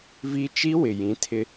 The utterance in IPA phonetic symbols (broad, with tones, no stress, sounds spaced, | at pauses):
v i˦ t͡ʃ i˦ w ɪ˨ j ĩ˨˦ tʰ ɪ˦